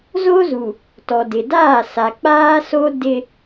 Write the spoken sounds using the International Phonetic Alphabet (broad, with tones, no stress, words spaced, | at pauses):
zo˦zu˨ | tɔ˨dɪ˨daː˦˨ sa˨k͡paː˦so˦ dɪ˦